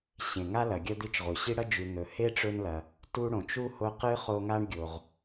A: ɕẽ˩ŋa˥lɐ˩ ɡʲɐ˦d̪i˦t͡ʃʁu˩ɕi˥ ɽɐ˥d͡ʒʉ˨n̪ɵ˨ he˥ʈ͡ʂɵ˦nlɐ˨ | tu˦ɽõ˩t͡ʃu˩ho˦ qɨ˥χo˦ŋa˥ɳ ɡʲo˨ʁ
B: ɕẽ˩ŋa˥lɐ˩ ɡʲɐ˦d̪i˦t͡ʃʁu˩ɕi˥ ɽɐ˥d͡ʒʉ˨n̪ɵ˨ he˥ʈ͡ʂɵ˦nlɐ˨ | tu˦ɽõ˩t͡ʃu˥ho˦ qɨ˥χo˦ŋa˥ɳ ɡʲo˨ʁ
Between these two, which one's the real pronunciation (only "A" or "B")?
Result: B